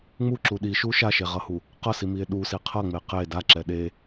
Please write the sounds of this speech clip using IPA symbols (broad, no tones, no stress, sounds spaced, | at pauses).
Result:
ŋ͡m u ǁ u ɗ i ʃ u ʃ a ʃ e ʁ ʌ h u | q ʌ s i m i e̯ ɗ u s i qʰ ʌ ŋ͡m e q e d a ǁ ɛ ɗ e